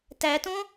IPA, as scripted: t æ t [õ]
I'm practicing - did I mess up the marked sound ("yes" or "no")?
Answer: no